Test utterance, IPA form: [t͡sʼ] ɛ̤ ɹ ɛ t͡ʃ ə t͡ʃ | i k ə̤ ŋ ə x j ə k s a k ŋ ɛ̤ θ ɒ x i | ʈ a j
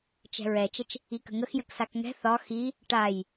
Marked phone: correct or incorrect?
incorrect: t͡ʃ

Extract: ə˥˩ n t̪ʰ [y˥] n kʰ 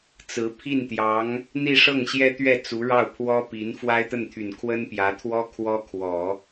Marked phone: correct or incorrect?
incorrect: y˨˩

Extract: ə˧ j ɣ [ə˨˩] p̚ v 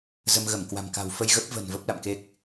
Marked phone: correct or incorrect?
incorrect: ə˦˥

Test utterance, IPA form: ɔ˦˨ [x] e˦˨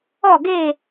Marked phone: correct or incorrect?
incorrect: ɡ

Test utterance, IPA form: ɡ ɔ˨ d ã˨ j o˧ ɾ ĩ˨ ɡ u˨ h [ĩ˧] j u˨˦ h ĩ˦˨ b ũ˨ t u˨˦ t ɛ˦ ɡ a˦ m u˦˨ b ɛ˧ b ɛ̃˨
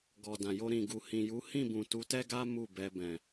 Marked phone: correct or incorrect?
incorrect: ĩ˨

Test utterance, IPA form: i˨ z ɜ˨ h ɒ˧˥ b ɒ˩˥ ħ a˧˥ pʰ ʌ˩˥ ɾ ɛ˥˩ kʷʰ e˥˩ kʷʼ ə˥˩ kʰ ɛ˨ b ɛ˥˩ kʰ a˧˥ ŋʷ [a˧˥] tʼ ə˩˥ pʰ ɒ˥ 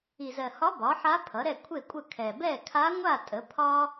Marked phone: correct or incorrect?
incorrect: a˥˩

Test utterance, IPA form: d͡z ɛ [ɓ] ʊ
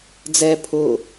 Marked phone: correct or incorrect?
incorrect: pʰ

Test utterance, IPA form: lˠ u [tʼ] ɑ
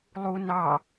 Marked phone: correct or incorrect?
incorrect: n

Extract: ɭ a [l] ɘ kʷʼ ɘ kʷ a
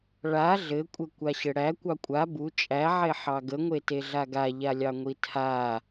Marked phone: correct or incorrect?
incorrect: ɮ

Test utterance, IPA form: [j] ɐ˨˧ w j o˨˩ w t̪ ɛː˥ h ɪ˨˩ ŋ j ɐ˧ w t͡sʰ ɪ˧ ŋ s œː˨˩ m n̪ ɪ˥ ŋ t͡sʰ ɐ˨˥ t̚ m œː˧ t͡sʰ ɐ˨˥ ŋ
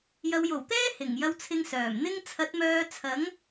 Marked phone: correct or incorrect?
correct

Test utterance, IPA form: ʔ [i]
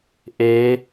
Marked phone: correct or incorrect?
incorrect: e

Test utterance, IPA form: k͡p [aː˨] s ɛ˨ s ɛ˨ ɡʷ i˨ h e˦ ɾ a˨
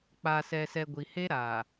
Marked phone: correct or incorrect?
correct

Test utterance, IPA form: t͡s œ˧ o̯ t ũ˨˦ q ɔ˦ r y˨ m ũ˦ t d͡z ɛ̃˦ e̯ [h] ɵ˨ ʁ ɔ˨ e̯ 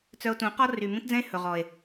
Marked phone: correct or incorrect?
correct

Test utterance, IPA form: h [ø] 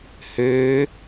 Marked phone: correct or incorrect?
correct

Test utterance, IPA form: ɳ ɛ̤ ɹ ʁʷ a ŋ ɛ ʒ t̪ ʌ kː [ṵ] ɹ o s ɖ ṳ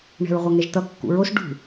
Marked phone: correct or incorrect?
correct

